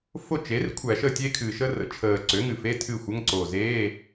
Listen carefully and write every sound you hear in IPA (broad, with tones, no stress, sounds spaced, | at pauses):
f o˥˩ t͡ʃ e˩˥ r kʷʰ æ˧˩˧ ʃ əː˥˩ tʲ e˥ kʰ ɨː˨˩ ʃ əː˥ r ə̰˩˥ t͡ʃʰ əː˨˩ ǀ ø˩˥ ŋ ɨ˨˩ f e˧˥˧ tʰ ɨ˥˩ xʷ ə˧˥˧ ŋ ǀ o˨˩ z eː˧˥˧